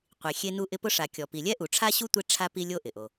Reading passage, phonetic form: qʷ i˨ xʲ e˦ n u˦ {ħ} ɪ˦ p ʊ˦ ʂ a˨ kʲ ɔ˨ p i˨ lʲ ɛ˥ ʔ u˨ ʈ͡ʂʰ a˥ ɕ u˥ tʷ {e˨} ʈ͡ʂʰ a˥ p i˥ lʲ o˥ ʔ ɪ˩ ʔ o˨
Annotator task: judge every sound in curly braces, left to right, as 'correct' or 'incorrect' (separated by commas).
incorrect, incorrect